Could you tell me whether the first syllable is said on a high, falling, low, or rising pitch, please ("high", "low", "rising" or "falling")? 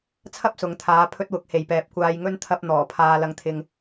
high